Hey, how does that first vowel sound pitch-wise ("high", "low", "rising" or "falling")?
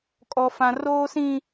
high